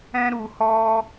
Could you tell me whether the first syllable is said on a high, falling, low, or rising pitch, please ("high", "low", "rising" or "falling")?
high